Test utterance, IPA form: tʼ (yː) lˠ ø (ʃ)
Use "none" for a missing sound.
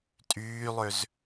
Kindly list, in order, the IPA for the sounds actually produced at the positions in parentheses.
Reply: yː, z

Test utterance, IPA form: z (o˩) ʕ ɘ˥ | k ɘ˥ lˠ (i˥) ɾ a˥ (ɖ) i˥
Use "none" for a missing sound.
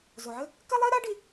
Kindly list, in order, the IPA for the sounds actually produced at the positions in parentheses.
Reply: o˩, i˥, ɖ

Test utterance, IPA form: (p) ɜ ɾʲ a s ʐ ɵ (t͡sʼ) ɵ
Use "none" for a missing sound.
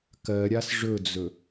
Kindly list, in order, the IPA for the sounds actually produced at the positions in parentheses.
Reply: k, d͡z

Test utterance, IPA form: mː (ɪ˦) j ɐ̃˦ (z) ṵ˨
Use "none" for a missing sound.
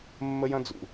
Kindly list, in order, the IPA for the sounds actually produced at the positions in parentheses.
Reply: ə˦, d͡z

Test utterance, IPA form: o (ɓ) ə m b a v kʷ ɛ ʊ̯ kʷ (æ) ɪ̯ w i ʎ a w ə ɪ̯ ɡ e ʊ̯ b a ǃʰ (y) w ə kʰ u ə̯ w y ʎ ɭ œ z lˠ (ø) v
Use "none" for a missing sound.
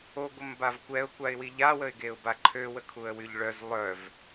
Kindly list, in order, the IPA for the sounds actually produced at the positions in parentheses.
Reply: ɡʷ, a, ø, œ

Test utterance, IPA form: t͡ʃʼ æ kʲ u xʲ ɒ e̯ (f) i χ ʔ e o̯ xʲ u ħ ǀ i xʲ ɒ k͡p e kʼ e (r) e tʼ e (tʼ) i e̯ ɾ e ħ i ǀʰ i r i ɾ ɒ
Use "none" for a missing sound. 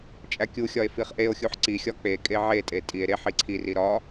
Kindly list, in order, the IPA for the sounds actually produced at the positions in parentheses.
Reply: f, ʕ, tʼ

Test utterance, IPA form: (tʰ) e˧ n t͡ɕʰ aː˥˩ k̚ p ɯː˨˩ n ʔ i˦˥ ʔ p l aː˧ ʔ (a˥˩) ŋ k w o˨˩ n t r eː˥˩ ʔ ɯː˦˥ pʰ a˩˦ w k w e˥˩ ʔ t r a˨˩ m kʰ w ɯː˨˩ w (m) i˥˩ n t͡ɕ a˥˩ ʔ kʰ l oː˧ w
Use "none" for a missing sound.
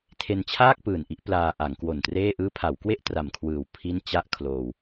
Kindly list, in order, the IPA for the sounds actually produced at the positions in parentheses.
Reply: tʰ, a˩˦, pʰ

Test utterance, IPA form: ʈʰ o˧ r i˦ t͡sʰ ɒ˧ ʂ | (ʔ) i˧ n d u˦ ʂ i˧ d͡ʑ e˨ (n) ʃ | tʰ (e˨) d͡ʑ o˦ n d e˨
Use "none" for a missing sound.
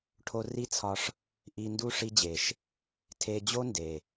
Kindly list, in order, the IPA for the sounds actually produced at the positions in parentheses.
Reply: ʔ, none, e˧

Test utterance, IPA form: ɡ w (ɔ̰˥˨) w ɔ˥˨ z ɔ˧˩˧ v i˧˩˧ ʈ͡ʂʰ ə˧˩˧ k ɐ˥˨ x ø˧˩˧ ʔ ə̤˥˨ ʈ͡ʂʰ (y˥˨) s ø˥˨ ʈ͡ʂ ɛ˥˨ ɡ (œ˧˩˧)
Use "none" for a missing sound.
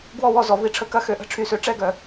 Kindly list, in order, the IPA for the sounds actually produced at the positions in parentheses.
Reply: ɔ˥˨, y˥˨, œ˧˩˧

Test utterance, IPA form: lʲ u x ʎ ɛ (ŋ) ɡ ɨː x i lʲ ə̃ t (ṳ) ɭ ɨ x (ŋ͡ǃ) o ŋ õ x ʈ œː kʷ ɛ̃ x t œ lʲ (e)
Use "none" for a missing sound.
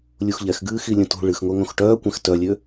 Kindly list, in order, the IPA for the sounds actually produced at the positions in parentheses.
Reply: x, ṳ, ŋ, ø

